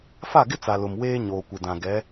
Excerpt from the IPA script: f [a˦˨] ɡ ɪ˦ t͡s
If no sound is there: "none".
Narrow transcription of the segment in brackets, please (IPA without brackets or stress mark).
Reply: a˦˨